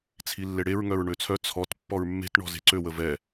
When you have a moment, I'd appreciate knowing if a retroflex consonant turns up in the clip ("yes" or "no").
yes